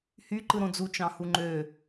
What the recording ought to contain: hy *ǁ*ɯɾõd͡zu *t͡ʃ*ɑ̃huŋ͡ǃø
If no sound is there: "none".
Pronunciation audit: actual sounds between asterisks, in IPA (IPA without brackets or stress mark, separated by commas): ǃ, t͡ʃ